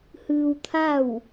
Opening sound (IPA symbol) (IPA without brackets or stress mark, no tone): h